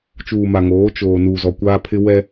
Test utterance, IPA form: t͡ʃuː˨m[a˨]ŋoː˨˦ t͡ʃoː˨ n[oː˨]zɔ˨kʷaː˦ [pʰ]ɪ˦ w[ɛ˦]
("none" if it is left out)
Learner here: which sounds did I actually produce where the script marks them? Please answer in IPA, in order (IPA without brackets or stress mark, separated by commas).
a˨, uː˨, pʰ, ɛ˦